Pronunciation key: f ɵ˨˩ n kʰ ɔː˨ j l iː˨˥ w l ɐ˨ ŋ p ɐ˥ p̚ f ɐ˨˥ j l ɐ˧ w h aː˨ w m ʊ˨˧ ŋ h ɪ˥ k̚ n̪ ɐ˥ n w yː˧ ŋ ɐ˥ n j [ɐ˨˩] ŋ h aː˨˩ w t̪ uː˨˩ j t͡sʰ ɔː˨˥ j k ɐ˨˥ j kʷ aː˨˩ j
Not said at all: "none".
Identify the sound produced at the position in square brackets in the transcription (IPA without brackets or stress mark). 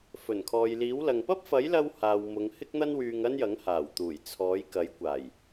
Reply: ɐ˨˥